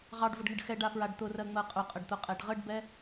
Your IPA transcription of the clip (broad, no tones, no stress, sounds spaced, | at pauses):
ʁ ɑ ɖ v ʊ ɖ ŋ ə ɖ x ɛ ɖ a f ɹ a ɖ t̪ ʊ r ɜ ŋ͡m ɜ qʼ ʊ qʼ ə ɖ t̪ ʊ qʼ ɛ ɖ ʁ ə ɖ b ɛ